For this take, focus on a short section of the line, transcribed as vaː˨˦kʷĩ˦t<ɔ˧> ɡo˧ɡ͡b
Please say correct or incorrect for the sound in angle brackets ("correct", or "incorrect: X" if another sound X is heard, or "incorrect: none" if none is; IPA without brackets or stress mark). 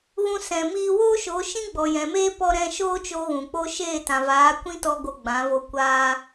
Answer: correct